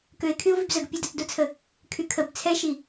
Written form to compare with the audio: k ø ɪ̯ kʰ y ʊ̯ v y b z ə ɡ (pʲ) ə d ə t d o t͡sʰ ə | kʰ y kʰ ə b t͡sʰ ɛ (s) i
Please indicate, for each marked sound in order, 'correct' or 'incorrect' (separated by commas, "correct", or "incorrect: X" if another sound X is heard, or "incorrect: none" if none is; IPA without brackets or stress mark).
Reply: correct, incorrect: ʃ